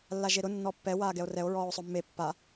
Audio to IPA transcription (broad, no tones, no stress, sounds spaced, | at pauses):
lː a ʒ e ɾ ʊ nː ɔ pː ɛ w aː ɡ ɛ o̯ r ɛ o̯ ɹ ɔː o̯ sˤ ʊ mː e pː a